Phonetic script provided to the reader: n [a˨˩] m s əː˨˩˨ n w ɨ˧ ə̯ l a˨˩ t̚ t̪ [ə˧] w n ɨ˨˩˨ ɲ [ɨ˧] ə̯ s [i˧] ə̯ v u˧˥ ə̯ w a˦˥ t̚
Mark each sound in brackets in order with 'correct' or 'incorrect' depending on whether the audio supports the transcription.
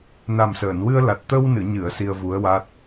correct, correct, incorrect: ɨ˨˩˨, correct

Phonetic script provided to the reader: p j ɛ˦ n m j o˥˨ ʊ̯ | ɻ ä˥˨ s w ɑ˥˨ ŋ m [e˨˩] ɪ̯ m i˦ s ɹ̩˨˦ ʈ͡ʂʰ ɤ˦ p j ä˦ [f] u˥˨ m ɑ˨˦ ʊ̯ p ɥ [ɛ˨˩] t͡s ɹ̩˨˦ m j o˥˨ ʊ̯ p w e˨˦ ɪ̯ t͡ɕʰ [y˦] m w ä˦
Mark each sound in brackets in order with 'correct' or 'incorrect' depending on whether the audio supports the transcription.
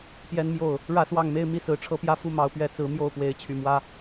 incorrect: e˦, correct, incorrect: ɛ˨˦, incorrect: y˨˩

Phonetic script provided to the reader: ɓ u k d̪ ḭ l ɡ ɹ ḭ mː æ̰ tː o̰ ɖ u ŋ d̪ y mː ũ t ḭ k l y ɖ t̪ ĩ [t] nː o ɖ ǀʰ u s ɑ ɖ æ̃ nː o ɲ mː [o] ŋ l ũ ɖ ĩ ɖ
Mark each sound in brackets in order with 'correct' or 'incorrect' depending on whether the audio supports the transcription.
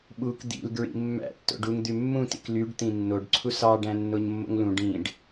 incorrect: none, incorrect: o̰

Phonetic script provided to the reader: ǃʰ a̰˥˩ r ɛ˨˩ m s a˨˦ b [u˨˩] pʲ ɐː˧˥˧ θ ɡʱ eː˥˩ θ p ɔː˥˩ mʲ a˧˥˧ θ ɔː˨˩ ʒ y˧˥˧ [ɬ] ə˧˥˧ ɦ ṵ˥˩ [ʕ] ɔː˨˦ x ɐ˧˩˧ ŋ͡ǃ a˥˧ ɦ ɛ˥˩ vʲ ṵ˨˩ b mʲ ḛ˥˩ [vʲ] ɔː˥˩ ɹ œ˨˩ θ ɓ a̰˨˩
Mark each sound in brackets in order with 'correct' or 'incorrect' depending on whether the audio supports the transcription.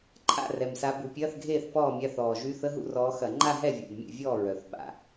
correct, incorrect: θ, incorrect: r, correct

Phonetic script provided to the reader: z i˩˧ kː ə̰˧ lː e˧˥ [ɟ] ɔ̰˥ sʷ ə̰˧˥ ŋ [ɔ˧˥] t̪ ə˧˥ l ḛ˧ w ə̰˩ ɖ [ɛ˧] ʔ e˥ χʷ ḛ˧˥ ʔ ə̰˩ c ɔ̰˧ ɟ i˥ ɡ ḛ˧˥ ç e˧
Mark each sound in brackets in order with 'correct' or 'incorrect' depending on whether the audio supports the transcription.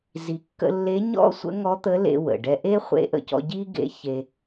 incorrect: ɲ, correct, correct

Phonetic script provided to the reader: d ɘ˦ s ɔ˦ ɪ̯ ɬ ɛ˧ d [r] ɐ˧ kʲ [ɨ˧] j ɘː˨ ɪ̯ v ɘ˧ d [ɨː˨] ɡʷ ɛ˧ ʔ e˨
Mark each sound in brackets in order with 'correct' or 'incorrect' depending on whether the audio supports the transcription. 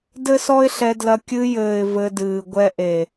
incorrect: l, correct, correct

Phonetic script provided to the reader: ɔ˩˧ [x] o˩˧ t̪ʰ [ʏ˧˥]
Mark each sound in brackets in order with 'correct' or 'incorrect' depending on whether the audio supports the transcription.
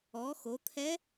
correct, incorrect: ɛ˧˥

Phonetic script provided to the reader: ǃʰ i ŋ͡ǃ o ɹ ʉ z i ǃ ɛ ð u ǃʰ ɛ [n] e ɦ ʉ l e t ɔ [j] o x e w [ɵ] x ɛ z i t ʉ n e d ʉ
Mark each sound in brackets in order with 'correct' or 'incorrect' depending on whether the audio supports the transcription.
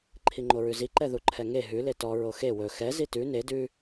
incorrect: ŋ, incorrect: ɹ, correct

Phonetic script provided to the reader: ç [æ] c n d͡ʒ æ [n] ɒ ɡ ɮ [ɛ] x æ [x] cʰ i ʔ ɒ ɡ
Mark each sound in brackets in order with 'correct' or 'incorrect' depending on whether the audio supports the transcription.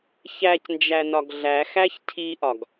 correct, correct, incorrect: æ, incorrect: ç

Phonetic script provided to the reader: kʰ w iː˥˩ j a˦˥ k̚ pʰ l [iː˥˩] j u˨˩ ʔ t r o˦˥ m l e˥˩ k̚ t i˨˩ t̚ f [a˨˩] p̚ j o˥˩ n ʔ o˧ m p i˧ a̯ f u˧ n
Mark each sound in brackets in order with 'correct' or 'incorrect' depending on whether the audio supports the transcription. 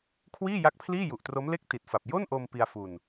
correct, correct

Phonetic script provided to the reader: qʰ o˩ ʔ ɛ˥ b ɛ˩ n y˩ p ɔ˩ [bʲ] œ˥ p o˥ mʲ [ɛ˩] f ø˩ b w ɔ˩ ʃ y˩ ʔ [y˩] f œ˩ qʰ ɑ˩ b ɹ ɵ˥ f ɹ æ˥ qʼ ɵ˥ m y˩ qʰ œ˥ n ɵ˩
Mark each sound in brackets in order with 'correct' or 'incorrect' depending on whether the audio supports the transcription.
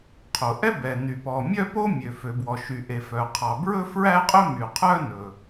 incorrect: mʲ, incorrect: ø˩, incorrect: e˩

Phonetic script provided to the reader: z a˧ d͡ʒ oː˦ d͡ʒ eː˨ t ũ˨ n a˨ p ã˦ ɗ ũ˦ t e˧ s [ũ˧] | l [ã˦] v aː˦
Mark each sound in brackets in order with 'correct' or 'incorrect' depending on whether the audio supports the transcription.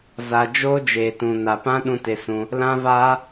correct, correct

